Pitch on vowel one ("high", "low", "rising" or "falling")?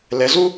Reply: rising